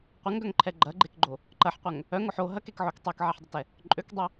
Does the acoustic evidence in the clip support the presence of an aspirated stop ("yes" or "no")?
yes